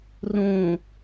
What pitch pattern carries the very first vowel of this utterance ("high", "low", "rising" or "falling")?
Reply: low